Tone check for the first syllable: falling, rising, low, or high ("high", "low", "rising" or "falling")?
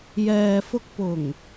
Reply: low